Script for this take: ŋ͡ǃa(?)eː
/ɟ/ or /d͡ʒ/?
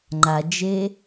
d͡ʒ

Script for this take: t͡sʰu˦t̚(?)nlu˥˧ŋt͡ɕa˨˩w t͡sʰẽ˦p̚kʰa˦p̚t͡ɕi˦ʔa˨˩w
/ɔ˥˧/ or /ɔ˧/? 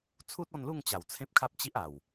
ɔ˥˧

